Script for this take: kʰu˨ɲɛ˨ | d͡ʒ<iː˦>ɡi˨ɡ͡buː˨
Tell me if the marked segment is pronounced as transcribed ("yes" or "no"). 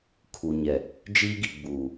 yes